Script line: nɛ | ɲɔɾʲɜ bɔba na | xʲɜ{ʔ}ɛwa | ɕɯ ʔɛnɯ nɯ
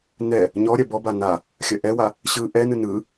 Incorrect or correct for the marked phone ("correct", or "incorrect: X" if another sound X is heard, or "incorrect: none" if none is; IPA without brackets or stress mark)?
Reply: correct